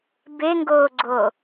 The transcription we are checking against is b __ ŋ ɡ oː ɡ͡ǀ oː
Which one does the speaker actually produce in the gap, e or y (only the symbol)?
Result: e